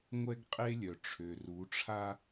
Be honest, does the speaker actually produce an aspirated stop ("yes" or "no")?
yes